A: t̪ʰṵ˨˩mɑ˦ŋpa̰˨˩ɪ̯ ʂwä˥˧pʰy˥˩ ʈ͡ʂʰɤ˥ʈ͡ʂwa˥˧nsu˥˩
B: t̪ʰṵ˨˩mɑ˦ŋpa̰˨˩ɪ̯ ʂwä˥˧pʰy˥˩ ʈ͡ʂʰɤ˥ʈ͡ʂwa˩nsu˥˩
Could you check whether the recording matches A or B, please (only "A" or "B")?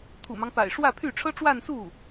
A